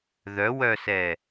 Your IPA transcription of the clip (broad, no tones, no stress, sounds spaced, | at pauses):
ð œ w œ s ɛ